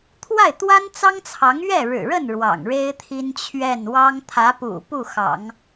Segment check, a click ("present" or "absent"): absent